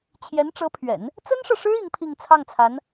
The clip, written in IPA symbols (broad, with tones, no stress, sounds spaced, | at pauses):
t͡ɕʰ j ɛ˧˥ n ʈ͡ʂ ɤ˧˥ pʰ ɥ ɛ̰˨˩˦ n | t͡s ə˥ n ʂ ɤ˨ ʂ ɻ̩˥ i˧˥ ŋ pʰ i˥˧ ŋ t͡sʰ ɑ˥˩ ŋ t͡sʰ a˧˥ n